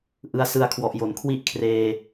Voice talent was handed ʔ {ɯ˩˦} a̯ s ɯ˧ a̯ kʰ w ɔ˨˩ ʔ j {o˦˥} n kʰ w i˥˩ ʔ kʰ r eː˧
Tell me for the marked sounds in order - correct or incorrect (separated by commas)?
incorrect, incorrect